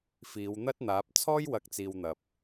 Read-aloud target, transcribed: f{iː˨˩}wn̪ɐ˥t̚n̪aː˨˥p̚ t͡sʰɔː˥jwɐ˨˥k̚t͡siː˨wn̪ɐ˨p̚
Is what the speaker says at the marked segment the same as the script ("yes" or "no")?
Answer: no